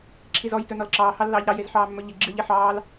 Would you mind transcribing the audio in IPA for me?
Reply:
ǁʰ i z ɔ j t ɵ n ɔ l ǁ ɑː h ɑ lː ɑː ʎ ɾ ɑ j e z ħ ɑː mː ɵ ʎ ɪ ɡ͡ǁ ɨ ʎ e ħ ɑː l

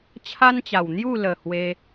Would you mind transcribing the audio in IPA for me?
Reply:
t͡ɕʰ a˦ n t͡ɕ a˨˩ w n̪ j u˥˧ l ə˨˩ h w e˧

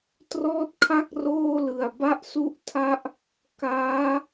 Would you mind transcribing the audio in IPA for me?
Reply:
t r ɔː˥˩ t̚ kʰ a˥˩ k̚ r oː˥˩ l ɯ˨˩ a̯ b a˦˥ ʔ s u˦˥ ʔ tʰ a˦˥ ʔ | k aː˦˥

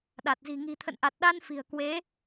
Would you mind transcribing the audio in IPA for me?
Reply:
ɗ a˨˩ t̚ z i̤˨˩ ŋ i̤˨˩ t̪ʰ ə̰˧˨ n ʔ a˨˩ t̚ ɗ a˧ n f i̤˨˩ ə̯ k w e˨˦

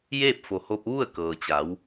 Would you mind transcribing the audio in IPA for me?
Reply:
j eː˥˨ p̚ f o˩ h o˧ p̚ ʋ u˥˨ ə̯ k ɤː˩ t͡ɕ a˩˧ w

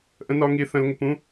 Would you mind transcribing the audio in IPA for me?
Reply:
ʔ ə̃˨ n ɒ˨ ŋ i˨ θ ə̃˨ l ŋ ə˨ p ũ˦

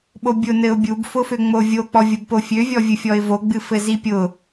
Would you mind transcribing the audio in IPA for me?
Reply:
ɓ o bʲ ʊ n ɘ ʊ̯ bʲ u b f ʊ f ø ŋ͡m o vʲ o k͡p ɔ vʲ ʊ b p o fʲ ø vʲ ɔ vʲ ɨ fʲ ɔ ɪ̯ v o ɡ͡b ɨ f ɘ z i pʲ ʊ

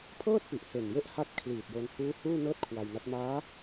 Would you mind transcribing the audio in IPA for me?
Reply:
pʰ ɤː˥˩ t̚ p i˨˩ ʔ h e˨˩ n j e˦˥ ʔ h a˦˥ t̚ kʰ l iː˨˩ t̚ j o˧ n h uː˦˥ h uː˥˩ n ɤː˥˩ t̚ kʰ w a˧ j n a˦˥ t̚ m aː˦˥

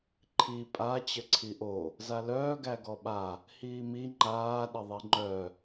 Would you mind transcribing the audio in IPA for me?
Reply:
ǃʰ i pʼ a t͡ɕ ə ǀʰ i ʔ o | z a l œː ɡ æ ɡ ɔ ɓ a | h iː m i ŋ͡ǃ aː ɗ ə ðˤ i ŋ͡ǃ œ

